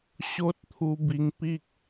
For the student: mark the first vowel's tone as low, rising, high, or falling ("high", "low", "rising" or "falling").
high